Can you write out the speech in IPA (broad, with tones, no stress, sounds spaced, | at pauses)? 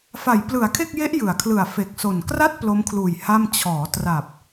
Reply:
f a˩˦ j p l ɯ˩˦ a̯ kʰ e˥˩ k̚ j e˦˥ ʔ j ɯ˩˦ a̯ kʰ l ɯ˨˩ a̯ f e˨˩ k̚ s o˨˩ n k r a˥˩ t̚ p l o˦˥ m kʰ l uː˨˩ j h a˥˩ m t͡ɕʰ ɔː˩˦ t r a˨˩ p̚